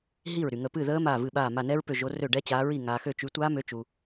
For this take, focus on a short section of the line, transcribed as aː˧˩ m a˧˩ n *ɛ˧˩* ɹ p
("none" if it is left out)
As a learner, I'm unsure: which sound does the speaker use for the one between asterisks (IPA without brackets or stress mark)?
ɛ˦˥